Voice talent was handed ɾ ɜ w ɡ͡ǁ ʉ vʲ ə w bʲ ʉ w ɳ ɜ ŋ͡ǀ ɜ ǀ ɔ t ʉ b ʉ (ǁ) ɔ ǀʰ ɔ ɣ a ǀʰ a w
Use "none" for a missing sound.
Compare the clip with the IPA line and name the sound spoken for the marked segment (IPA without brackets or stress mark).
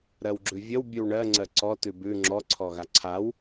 ŋ͡ǁ